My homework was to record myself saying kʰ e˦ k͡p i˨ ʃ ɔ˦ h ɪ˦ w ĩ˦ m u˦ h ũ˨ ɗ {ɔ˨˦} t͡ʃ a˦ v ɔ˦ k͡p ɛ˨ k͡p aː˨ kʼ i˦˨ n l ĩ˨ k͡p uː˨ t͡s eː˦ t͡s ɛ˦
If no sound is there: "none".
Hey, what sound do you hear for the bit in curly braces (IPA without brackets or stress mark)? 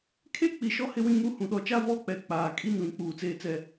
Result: ɔ˨˦